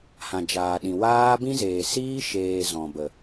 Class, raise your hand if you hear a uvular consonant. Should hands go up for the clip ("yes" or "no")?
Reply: no